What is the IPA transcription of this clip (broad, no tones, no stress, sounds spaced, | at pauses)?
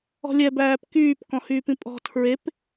ɔ̤ lʲ ɛ b æː p k yː p k ɔ̃ h yː p ĩ pʼ ɔ̤ tʰ ɹ e p